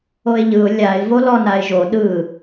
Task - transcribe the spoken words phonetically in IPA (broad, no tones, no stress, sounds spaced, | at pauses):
o ɪ̯ ʎ ɯ ʊ̯ lʲ a ɪ̯ v o l ɔ n a ɪ̯ ʒ o ɗ ɯ